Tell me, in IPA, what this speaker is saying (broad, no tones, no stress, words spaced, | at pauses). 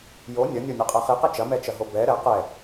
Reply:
jo nʲɐnʲonʲɐqʼɛ χiqi t͡ʃɐmɛt͡ʃɐɦo bɛ ɾɛ qɛ